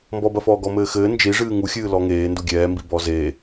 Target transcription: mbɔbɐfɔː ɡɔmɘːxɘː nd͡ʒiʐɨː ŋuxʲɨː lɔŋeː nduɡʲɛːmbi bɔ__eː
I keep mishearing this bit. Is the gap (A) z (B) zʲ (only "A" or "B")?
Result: A